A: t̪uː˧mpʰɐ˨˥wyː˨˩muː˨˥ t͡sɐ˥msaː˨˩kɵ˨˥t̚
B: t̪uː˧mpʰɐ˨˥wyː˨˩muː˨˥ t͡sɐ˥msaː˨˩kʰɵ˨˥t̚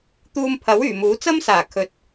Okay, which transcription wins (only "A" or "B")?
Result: B